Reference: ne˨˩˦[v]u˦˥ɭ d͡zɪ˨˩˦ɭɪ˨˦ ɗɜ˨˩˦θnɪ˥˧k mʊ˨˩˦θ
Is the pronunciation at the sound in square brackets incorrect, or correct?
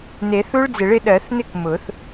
incorrect